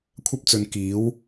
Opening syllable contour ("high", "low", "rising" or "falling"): high